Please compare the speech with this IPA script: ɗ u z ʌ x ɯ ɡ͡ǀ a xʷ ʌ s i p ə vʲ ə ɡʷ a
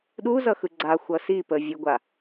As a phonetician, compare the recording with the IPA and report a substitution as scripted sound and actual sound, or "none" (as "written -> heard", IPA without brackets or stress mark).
none